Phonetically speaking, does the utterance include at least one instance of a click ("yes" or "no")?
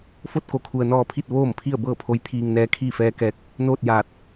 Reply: no